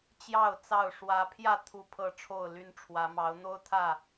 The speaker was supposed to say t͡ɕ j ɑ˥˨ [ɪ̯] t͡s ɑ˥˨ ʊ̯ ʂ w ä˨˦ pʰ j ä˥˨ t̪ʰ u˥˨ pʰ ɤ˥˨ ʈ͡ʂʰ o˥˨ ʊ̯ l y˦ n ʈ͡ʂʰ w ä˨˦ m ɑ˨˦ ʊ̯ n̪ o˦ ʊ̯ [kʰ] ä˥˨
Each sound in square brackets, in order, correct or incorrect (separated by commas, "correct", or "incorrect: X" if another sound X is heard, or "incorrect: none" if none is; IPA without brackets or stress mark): incorrect: ʊ̯, incorrect: t̪ʰ